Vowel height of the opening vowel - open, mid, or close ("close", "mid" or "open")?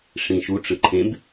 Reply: close